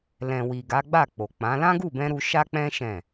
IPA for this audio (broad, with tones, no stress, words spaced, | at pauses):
lɛ̃˨wi˨ ɡa˨˦ɡ͡ba˦˨k͡po˨k͡pã˨˦ lã˦ ɡu˦˨bɛ̃˧ ɾu˧ʃa˦k͡pɛ̃˦ ʃɛ̃˦˨